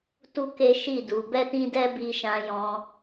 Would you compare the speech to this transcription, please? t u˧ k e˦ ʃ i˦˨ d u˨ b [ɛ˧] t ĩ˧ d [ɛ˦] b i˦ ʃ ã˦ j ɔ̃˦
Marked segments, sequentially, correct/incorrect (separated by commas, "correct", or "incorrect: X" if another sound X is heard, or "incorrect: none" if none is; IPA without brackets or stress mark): correct, incorrect: ɛ˧